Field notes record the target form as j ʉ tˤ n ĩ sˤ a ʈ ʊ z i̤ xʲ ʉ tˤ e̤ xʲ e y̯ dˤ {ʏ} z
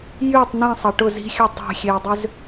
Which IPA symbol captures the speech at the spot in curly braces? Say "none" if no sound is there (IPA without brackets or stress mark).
ʏ